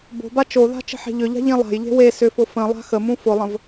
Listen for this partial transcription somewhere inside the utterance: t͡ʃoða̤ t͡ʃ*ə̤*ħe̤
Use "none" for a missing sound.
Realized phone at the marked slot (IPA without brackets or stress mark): ə̤